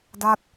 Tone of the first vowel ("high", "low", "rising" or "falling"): falling